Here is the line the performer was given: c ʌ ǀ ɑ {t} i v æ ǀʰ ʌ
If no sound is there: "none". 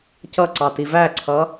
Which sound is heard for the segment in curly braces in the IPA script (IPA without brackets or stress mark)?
t